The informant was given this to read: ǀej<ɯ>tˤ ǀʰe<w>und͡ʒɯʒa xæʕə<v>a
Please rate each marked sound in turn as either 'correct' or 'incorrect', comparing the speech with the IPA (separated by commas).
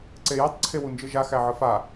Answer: incorrect, correct, incorrect